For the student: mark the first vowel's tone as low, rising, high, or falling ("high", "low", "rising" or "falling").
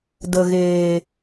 low